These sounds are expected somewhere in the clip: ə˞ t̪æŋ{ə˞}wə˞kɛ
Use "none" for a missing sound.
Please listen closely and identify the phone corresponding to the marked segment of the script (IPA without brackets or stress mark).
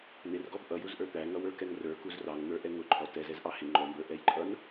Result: ʌ